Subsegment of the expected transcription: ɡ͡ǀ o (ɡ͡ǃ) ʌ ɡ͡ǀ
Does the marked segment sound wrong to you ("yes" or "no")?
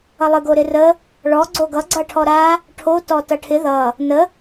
yes